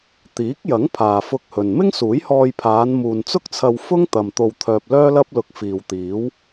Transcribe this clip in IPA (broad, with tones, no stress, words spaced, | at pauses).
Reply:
t̪iː˨˥k̚jɐ˨˥ŋ pʰaː˨fʊ˧k̚hɵ˨n mɪ˥ŋsuː˨˥jhɔː˧jpʰaː˨˧n muː˨nt͡sʊ˥k̚t͡sʰɐ˧w fʊ˥ŋt̪ɐ˨m t̪o˧wt̪ʰœː˧p̚lœː˥lɐ˥p̚ lʊ˧k̚ fiː˨w t̪iː˨˥w